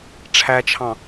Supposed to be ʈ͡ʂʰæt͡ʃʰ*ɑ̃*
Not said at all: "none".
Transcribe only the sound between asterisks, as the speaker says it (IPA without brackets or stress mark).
ɑ̃